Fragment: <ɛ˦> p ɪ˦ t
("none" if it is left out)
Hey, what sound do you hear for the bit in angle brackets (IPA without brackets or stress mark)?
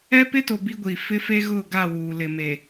ɛ˦